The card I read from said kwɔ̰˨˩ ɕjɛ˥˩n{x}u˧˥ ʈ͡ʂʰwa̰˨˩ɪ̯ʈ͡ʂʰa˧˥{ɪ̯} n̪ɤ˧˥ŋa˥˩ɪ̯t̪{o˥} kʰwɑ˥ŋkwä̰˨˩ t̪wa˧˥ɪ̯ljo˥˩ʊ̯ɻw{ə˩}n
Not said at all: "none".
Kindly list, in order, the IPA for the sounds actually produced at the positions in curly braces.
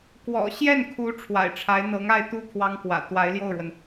kʰ, ɪ̯, u˥, ə˩

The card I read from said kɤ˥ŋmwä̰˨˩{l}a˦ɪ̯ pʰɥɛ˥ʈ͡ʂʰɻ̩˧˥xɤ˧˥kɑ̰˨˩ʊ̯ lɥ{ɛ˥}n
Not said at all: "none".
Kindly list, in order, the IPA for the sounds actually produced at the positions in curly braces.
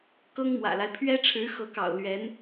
l, ɛ˧˥

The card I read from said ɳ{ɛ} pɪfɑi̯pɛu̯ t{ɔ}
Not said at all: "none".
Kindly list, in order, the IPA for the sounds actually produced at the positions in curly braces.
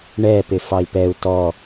ɛ, ɔ

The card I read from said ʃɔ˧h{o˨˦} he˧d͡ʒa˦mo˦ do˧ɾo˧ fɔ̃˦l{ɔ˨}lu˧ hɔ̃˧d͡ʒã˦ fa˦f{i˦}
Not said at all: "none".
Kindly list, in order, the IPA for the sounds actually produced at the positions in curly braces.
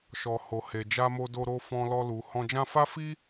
o˧, ɔ˦, i˦

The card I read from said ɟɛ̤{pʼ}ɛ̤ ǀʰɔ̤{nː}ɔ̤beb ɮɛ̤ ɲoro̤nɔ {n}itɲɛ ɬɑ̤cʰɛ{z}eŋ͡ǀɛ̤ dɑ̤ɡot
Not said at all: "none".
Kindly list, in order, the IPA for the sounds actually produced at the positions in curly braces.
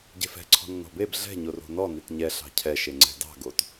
f, nː, n, ʃ

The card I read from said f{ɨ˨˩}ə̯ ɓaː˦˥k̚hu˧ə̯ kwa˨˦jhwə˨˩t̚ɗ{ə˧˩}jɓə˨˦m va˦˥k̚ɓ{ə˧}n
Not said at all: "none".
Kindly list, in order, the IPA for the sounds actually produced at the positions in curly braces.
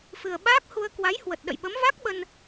ɨ˨˩, ə̰˧˨, ə˧

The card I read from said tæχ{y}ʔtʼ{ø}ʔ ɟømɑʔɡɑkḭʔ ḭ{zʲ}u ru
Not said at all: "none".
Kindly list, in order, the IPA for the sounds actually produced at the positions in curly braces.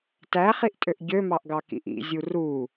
i, ø, zʲ

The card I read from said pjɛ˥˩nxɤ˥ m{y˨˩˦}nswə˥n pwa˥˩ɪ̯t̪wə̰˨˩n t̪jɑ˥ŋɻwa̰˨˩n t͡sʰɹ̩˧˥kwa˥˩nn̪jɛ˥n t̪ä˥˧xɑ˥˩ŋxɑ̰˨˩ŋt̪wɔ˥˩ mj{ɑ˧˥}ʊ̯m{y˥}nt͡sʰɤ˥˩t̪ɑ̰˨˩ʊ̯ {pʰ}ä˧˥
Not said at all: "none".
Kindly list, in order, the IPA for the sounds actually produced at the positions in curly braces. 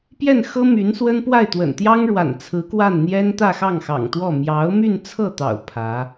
y˧˥, ɑ˧˥, y˥˧, pʰ

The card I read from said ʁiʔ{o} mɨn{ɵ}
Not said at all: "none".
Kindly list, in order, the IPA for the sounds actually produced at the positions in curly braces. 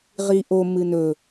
o, ɵ

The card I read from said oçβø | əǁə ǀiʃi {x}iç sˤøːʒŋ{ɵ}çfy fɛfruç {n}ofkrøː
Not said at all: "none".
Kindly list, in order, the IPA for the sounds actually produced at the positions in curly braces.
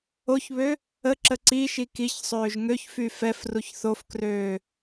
k, ø, θ

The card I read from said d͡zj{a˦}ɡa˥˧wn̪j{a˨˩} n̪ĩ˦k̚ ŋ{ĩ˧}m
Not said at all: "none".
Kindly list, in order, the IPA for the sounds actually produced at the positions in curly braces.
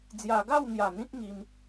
a˧, a˨˩, i˧

